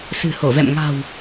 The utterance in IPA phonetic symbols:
sɨ̤˨˩ho˧˩vɛ̰˧˨m ŋa̤˨˩w

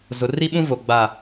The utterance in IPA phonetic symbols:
zʊ˨ri˦ɓũ˦vo˨ ɡ͡ba˦˨

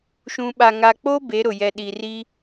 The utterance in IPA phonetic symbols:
ʃũ˨ɓa˨ ŋa˨k͡po˦ be˨˦ɾʊ˨ jɛ˨ɗi˨ri˦

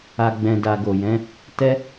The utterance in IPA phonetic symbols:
a˧ɡ͡bɛ̃˧ da˧ɡo˨jɛ̃˨˦ | tɛ˦

